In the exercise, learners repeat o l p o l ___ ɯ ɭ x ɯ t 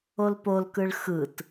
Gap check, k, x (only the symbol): k